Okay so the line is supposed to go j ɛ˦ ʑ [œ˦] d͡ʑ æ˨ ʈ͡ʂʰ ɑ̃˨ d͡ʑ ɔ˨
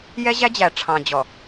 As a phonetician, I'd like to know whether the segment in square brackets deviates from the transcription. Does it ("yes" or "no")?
yes